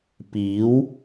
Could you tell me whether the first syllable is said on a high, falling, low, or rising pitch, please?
rising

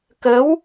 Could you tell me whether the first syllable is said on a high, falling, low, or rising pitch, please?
rising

